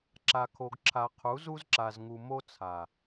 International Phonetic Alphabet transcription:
ǁa˨kʰo˨ɡǁʰa˨ qʰu˨˦zu˦zǁa˨z ŋu˨ mo˦t͡sʰa˨

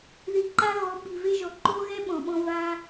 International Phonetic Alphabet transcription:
ði˨ǃa˧ ɣɔ˨˦ ɓi˨ve˦ʒɔ˨ ǃo˦ɣɛ˦ ɓɔ̃˨ɓɔ̃˦ va˧

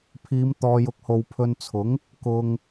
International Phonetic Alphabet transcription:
pʰiː˨˧mt̪ɔː˨jʊ˨˥k̚ ho˨w pʰɵ˧nt͡sʰʊ˨˥ŋ | kʊ˨ŋ

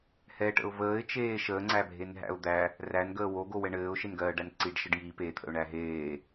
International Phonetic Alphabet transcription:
hɛʈə̰ʊ̯ vəːɪ̯t͡ʃeː ʃəːŋ͡ǀæbʱenɦæ̰ʊ̯ d̪æ | rænɡəː woɡowɛ ɳɘːʊ̯ʃenɡɜːɖæn ǀiɖʃəɖ ji pet̪ʰə̰ʊ̯ɳæ ɦeː

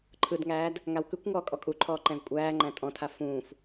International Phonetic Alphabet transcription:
ǃʰɯdŋæːd | ŋawkɯkʷŋɔː kʼɔkʼuǃʰɔː ǃɛ̃vkʷʼæːŋ͡ǃæ̃ tʼɔ̃tʰa fũːf

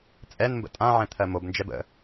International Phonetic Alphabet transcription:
t͡sʼɛnmbə̰ tʼãʕɛ̃ t̪ʰɜmobnd͡ʒɛb ə̰

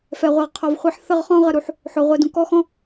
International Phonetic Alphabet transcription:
fɛ˨ʁʷe˨ʁqʰɔ˨vχʷe˦ħ θə˦˨ʁχɔ̃˦ ʁə˨ɾu˦ħ | ħo˨ʁʷe˨dũ˨ kɔ˦xɔ̃˦

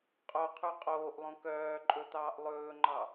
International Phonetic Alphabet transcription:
qʼoqʰʉ qʼoːʔlˠõ kœːǃʼɵt̪ɑːʔ lˠɵːŋ͡ǃɑ

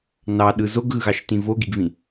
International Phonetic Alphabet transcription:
nɑɗɯ zoɡɣɯɣɑʃtĩ voɡiɡvĩ

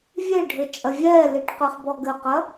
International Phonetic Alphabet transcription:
vʲeɖʱɘ t͡ʃʼɐvʲɛːliʈ qɨχbɔɡɘqɐ

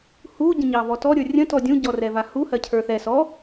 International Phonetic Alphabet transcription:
hu ɟə̃ɲɑvɔtɔ ɾʲə˞rʲə̃ tɔdʲũ ɟɔrɛvahu hɜcʰə˞θɛ sɔ

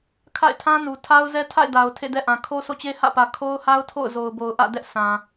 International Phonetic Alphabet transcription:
kʰa̰˦˨ɪ̯tʰã˦nu˨ tʰa˦ʊ̯zɛ˦ tʰa̰˦˨ɪ̯ da˨ʊ̯ tʰḛ˦˨dɛ˦ʔã˨ kʰo˦sʰo̰˦˨t͡ɕe˦ hä̰˦˨pä˨ kʰo˦ʊ̯ha˦ʊ̯tʰo̰˦˨ʊ̯ zo˨ʊ̯bo˨ʊ̯ʔä̰˦˨dɛ˦ʔ sã˨

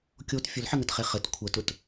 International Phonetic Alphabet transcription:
kʲot fʲʊlħɘŋətχe χɘt kʷʰətʊt

